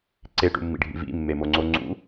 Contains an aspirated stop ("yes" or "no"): no